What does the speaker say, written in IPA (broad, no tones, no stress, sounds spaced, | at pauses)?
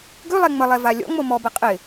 ɡ ʉ lˠ ɛ ŋ͡m ə lˠ ɛ v a lʲ ɔ̰ ŋ͡m o m ɔ b ə qʼ ɪ